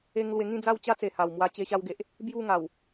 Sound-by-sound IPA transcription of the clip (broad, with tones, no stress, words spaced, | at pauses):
e˦ŋ lwe˧ŋĩ˥˧ d͡za˥˧wt͡ɕa˦t͡se˨˩ ha˨˩wmwa˧ t͡ɕe˧ɕa˧wɡe˨ʔ | bju˥˧ŋa˨˩w